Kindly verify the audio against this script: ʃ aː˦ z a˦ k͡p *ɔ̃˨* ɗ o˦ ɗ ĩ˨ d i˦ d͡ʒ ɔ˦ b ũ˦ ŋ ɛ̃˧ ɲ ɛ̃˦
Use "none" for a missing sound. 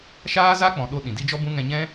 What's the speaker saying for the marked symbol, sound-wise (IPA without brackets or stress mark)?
ɔ̃˨